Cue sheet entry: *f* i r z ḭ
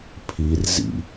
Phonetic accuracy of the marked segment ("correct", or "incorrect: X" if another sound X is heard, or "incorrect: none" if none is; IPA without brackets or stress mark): incorrect: pʰ